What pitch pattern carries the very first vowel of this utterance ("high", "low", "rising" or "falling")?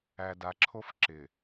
low